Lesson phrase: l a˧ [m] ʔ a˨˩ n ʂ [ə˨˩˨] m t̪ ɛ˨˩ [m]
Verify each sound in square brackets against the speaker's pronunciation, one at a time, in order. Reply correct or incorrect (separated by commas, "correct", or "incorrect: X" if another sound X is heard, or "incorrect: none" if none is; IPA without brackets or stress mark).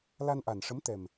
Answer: incorrect: n, incorrect: ə˧˥, correct